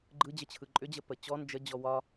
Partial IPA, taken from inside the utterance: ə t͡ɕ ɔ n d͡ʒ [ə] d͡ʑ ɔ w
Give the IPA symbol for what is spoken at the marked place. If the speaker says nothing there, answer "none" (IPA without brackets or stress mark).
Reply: ə